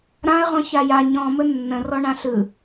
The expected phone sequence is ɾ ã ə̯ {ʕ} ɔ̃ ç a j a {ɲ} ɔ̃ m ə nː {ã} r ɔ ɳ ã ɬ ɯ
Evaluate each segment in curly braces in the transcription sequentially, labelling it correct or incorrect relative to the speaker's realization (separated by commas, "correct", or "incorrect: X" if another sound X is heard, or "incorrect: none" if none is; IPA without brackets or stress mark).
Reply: incorrect: ʁ, correct, incorrect: ə̃